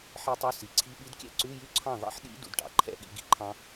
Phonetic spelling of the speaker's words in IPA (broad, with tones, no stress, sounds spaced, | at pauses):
ħ i˦˥ tˤ u˧˥˧ s i˩˥ ǀʰ i˧˥˧ ɓ i˦˥ d kʲ ɛ̰˦˥ ǀ ʉ˧˥˧ j y˥˩ ǀʰ ɑ̃˥˩ ðˤ ḭ˦˥ ħ ɗ ḭ˦˥ d ṵ˩˥ d ʈ ɑ̰˩˥ ǃʰ ɛ̰˧˥˧ ɠ ḭ˩˥ ɡ ḭ˦˥ ǃʰ ɑ̃˦˥